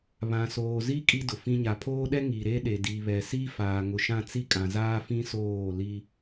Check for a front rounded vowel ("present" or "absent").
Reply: absent